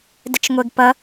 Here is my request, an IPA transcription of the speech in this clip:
dət͡ʃŋʷeɡpʌ

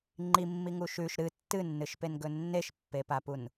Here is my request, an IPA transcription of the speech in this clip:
ŋ͡ǃimːiŋu ʃʉʃ ɾɨ tːɨnːɨʃpenɡɵ nːeʃpːepapun

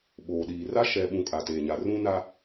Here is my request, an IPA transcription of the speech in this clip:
ɓoː˨ɗiː˨ ra˦ ʃɛ˨ɓũ˨ kʼa˨teː˨ɲa˨rũ˦ na˦

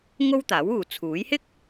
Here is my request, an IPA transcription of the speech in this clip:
ŋo˥wt̪aː˨˥wuː˨ t͡sʰuː˨˥j hɪ˥k̚

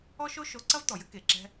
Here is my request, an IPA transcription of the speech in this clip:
ɔ˥ʃo˥ ʃo˧ ǀɐ˥vt̪ɔ˩jɘ˥ ke˩ǁɛ̤˧

